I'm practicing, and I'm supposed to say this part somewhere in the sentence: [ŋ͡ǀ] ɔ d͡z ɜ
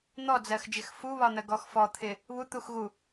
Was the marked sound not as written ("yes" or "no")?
yes